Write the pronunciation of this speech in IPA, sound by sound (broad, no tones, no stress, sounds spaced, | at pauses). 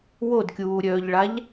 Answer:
w o d kʲ uː ɾʲ œː ʎ ɭ a ʎ